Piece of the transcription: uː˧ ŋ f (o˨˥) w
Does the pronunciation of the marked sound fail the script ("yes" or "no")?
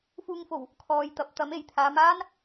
yes